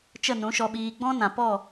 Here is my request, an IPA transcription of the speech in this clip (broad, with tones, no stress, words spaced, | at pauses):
t͡ʃə˦˨nũ˨˦ʃɔ˧ɓiː˧ ɡ͡bɔ̃˦nã˨pɔ˦˨